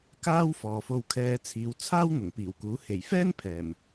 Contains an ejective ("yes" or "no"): no